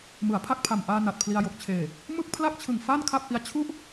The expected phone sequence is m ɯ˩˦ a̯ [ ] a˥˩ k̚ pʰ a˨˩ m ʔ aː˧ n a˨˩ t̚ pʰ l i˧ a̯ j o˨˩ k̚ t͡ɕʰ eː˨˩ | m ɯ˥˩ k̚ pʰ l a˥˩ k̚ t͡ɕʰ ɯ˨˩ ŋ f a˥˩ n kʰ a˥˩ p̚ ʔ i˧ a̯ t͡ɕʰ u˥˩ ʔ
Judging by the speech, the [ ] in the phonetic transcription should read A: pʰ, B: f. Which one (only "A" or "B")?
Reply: A